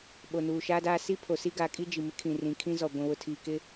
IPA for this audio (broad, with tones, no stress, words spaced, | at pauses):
ɓo˨nuː˨ ʃaː˦daː˦ si˦ pʰo˨si˦ ɡaː˨kʼi˦ d͡ʒi˨mɪ˦kʰĩ˨rĩ˨ kʰĩ˦zɔ˨ ɡʷĩ˨wʊ˨ tʰiː˨kɪ˦